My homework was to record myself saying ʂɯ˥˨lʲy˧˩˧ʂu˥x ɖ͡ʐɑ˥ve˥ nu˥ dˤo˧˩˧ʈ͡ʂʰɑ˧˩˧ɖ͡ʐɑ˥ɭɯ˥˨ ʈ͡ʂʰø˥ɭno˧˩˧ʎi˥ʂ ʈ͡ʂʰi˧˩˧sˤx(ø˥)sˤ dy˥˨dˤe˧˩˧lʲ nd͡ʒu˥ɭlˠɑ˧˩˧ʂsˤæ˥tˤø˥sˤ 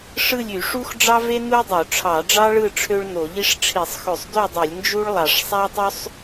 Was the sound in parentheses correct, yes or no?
no